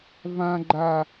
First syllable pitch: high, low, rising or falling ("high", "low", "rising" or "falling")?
high